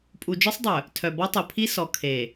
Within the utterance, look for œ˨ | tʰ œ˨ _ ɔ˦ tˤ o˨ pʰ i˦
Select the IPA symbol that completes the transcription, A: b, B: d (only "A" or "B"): A